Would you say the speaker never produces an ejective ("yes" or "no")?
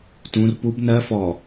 yes